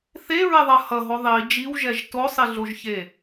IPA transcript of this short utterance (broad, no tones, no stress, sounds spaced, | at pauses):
θ e ɹ e ðˤ ʌ h ʌ ɦ o ðˤ i d͡ʒ i w ʒ ɛ ʒ t o sˤ i ɮ o ʒ ç e